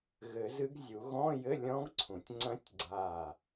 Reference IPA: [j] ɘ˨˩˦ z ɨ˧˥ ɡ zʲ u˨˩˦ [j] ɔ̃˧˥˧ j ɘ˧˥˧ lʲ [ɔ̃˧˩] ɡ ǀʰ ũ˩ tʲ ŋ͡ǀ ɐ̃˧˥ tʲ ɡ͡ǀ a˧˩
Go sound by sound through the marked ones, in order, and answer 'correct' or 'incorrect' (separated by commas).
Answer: incorrect, incorrect, incorrect